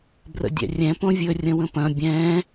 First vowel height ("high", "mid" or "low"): mid